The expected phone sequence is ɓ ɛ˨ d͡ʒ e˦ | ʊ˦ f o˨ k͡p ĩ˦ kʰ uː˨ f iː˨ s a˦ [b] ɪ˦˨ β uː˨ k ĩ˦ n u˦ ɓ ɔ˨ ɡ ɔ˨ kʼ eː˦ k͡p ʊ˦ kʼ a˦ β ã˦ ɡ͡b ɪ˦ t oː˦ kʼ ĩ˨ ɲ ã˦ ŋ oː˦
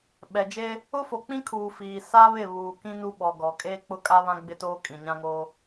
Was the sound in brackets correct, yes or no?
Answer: no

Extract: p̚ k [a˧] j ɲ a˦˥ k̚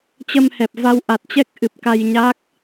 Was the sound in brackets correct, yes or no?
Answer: yes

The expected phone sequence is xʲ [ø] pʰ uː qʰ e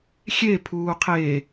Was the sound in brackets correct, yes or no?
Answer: no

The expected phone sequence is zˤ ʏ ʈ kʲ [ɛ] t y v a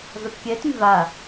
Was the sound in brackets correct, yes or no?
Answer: yes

